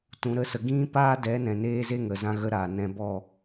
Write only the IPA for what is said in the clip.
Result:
t ũ˨ ɾ ə˨˦ s ə˨ ɡ ĩ˦ p aː˦ d ɛ˨˦ n ɛ̃˨ n eː˧ z e˦ ŋ ə˨ z ã˧ ɣ ə˨ ɾ aː˨ n ɛ̃˧ b ɔ˦˨

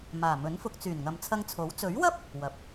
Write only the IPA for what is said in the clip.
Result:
m aː˨˩ m ɵ˨˥ n f ʊ˧ k̚ t͡s yː˨˩ n ŋ ɐ˨ m t͡sʰ ɐ˧ ŋ t͡sʰ o˨˥ w t͡s ɵ˨˥ ɥ w ɐ˥ p̚ | w ɐ˨˥ p̚

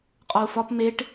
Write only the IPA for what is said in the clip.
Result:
qʼ ɒ u̯ f ɒ p m e ʈ

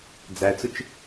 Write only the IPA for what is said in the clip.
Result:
d͡z æ t͡s ʊ t͡ʃ

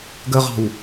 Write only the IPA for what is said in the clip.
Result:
ɡ ə ʁ ɑ̤ w

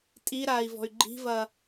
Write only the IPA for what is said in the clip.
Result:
tʼ i ɾ aː i̯ v ɔ̤ y̯ ɡ͡ǃ i̤ v ɐː

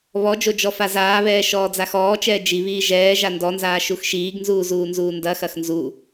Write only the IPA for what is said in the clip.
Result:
β ɔ d͡ʒ o d͡ʒ ɔ f a z aː β ɛː ʃ ɔː d͡z a x ɔː t͡ʃ ɛː d͡ʒ i β iː ʒ ɛː ʒ a n d ɔ n z aː ʃ u x ʃ iː ɡ n z uː z uː n z uː n d ɐ x ɐ x n z u

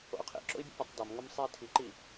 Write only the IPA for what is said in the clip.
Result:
o̰ u̯ qʰ ḭ ǁ o̰ i̯ bʲ ɛ̰ pʲ ɛ tˤ d ɒ m ŋ o m sˤ iː tʰ i ǃ iː

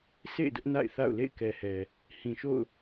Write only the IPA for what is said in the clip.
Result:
sʰ ḛ˦˨ ɪ̯ d ʊ˦ ʔ n a̰˦˨ ɪ̯ θ a̰˦˨ ʊ̯ l ḛ˦˨ ɪ̯ k ɛ˨ h ɛ˨ | h ĩ˨ ʃ o̰˦˨ ʊ̯

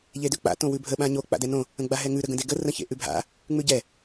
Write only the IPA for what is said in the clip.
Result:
ʎ e d ʉ k͡p a̰ t õ w ʉ bʱ ə ɓ ã ɲ o k͡p a̰ d ɛ n õ | ə̃ ɡ͡b a ɦ ɛ ŋ ʉ ɾ ə ɡ ə̃ d e ɡ ə r ə̃ ç ḛ ʔ ʉ bʱ a̰ | ŋ͡m ʉ ɟ ɛ

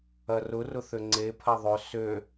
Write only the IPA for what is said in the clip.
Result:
ɐ r ʊ r ʊ θ ø ŋ͡ǀ e pʰ ɐ ðˤ ø s ø

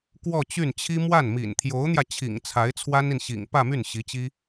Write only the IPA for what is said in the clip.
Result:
k w ɔ˥˧ t͡ɕ y˥˩ n t͡ɕʰ i˥ m w a˥˩ n m ḭ˨˩ n t̪ʰ j o˧˥ ʊ̯ n̪ j ä˧ t͡ɕʰ ḭ˨˩ ŋ t͡sʰ a˧˥ ɪ̯ t͡sʰ w a˥ n i˨ n ɕ ḭ˨˩ ŋ p ä˥˧ m y˥˩ n ɕ i˧˥ t͡ɕ i˥

